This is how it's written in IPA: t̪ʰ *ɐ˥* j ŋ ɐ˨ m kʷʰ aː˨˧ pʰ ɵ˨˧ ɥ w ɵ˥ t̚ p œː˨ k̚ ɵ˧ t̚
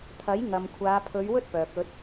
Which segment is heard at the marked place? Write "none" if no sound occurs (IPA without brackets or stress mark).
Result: ɐ˨˥